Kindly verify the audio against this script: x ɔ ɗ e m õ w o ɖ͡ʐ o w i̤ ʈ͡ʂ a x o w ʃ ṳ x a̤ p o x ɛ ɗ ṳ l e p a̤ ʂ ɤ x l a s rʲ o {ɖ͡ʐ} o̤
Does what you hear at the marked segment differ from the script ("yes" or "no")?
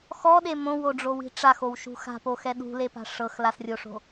yes